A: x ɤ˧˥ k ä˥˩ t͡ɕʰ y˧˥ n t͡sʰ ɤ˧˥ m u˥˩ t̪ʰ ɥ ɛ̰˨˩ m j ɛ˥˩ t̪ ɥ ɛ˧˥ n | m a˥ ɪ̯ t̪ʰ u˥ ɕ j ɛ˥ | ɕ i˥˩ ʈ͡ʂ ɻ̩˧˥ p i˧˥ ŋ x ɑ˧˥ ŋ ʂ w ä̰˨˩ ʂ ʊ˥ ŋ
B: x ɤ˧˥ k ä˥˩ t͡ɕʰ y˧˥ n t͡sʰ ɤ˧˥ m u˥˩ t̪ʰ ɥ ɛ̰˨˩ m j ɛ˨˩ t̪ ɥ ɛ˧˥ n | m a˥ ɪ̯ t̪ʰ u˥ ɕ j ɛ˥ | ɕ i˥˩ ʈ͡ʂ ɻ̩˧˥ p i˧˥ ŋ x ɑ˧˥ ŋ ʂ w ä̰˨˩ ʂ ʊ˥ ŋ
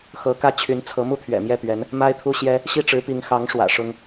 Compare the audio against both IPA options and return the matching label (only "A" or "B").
A